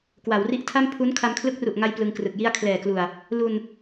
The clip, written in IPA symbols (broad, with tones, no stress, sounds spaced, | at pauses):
k w a˩˦ w r i˦˥ ʔ tʰ a˥˩ m pʰ u˦˥ n kʰ a˧ m kʰ l ɯ˦˥ k̚ r u˨˩ ʔ ŋ a˧ j p l ɯ˧ ŋ k r ɯ˨˩ k̚ j i˥˩ a̯ kʰ l ɛː˨˩ k l u˨˩ a̯ | l u˧ n